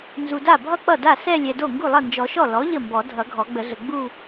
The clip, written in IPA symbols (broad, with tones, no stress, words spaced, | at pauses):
nzu˨da˥˩ bʱʌ˥˧ k͡pʌ˥˩da˥˩ sɛ˥˧ lʲɛ˨do˥˩ ŋɡu˥˩lˠʌ˥˩nd͡ʒɔ˨˩˦ʃɔ˥˩ lɔ˩˥ ʎə˥˩mbɔ˨˩˦ dʱʌ˨˩˦ɡʱɔ˨˩˦ɡ͡bə˨˩˦ɮə˨ ɡ͡bu˥˧